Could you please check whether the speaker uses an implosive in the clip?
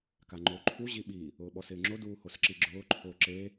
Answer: yes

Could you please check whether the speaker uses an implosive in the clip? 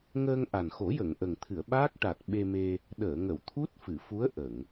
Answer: yes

